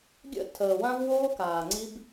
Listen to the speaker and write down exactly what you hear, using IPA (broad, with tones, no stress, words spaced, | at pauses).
ɡʲə̰˦˨ tʰəː˨wã˦v woː˦kaː˨ŋ͡ǀi˦b